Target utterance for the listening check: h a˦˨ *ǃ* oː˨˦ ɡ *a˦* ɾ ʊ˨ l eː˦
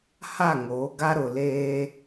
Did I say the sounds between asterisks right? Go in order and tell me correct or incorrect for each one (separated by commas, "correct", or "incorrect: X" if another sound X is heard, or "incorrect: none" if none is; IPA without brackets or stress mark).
incorrect: ŋ, correct